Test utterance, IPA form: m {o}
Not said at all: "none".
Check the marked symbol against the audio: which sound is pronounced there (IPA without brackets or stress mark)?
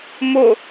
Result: o